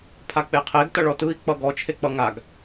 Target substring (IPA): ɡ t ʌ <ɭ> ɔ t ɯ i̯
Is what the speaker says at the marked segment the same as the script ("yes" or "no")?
yes